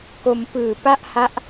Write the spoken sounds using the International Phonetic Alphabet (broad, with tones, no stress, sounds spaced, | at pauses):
k o˧ m p ɯː˨˩ p a˥˩ ʔ h a˦˥ ʔ